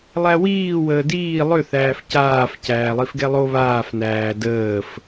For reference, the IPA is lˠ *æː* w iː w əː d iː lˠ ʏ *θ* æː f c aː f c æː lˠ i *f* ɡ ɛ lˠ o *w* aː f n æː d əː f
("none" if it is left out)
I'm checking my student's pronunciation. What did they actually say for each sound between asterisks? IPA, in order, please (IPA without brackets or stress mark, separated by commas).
æ, θ, f, β